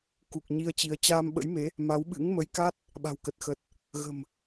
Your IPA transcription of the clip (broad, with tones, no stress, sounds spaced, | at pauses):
k u˨˩ k̚ ɲ i˧ ə̯ t͡ɕ i˨˦ ə̯ t͡ɕ aː˧ m ɓ ə̰˧˥ j m e˨˦ | m a˨˦ w ɓ ɨ̰˧˥ ŋ m ə˨˦ j k a˦˥ t̚ | ɓ a̤˨˩ w k ə˨˩ t̚ x ə˨˩ t̚ | ɣ ə̤˨˩ m